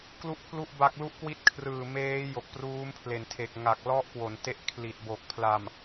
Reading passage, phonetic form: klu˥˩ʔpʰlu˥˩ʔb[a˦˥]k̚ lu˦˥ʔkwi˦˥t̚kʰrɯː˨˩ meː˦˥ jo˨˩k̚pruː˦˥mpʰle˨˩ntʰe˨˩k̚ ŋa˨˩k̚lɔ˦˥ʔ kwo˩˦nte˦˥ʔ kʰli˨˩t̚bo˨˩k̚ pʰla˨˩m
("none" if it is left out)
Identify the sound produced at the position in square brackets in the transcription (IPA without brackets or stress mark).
a˦˥